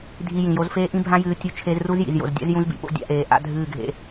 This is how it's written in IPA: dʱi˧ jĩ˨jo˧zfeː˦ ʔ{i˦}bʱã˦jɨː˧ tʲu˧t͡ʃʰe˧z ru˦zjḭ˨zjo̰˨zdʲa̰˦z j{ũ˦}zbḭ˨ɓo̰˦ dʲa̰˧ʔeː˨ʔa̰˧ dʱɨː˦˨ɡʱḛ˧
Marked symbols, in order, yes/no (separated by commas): no, yes